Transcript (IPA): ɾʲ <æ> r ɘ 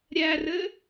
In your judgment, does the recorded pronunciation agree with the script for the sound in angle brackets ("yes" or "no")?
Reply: yes